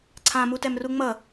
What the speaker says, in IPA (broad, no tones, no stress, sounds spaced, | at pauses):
ǀʰ ã m u t ɛ m r u ŋ͡m ʌ